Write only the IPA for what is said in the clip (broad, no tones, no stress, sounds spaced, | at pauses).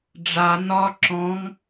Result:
ɖ͡ʐ a n ɒ ǁ ɔ̃ ŋ